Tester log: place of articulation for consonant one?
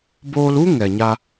labial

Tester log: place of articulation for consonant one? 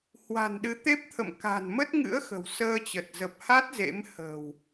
glottal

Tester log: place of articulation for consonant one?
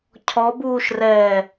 palatal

